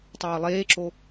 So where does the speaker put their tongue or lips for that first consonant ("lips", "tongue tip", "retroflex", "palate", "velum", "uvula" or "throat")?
tongue tip